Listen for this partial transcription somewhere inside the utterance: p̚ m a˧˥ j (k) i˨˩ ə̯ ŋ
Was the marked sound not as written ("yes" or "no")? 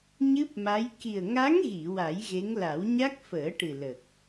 no